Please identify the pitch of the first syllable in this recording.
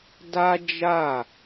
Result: high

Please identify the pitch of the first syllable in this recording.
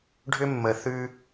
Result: high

